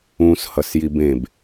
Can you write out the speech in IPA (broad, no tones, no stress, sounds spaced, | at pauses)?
ũ s h ʌ s j i b ẽ b